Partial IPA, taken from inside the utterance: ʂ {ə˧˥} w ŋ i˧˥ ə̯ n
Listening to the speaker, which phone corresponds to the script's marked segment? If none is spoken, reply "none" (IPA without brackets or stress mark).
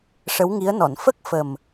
ə˧˥